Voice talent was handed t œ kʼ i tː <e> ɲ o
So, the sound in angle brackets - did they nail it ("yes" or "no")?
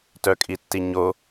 no